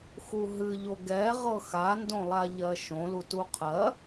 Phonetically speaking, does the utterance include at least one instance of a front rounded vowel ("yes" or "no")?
no